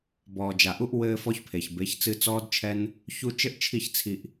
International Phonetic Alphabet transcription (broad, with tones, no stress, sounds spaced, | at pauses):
b ɔː˨ d͡ʒ a˨ ʔ u˧ ʔ w ɘː˧ f ɔ˧ ç pʰ e˨ ç b e˨˦ ç t͡s ɨ˧ t͡s ɔː˦ d t͡ʃʰ ɛ˦ n | ç u˧ t͡ʃ ɘ˦ ʔ t͡ʃʰ i˦˨ ç t͡sʰ i˧ ʔ